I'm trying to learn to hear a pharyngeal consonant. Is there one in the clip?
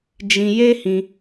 no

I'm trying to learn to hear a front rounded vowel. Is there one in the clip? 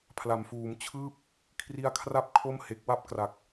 no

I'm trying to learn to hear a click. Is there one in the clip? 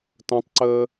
yes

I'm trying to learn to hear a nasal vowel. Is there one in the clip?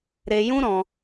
yes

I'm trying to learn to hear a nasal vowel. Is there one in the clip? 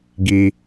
no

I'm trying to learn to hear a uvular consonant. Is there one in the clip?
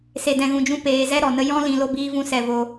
no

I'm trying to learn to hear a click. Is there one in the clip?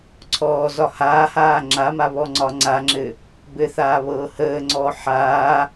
yes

